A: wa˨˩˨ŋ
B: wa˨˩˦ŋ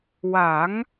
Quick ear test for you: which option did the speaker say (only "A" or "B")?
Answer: B